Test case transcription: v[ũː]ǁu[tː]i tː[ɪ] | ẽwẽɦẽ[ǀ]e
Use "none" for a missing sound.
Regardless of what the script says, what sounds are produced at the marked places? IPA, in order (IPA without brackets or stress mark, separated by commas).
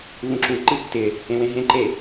ũ, ǃ, ɪ, ǃ